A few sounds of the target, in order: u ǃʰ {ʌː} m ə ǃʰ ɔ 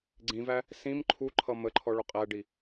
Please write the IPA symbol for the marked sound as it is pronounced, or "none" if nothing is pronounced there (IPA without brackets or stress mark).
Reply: ʌ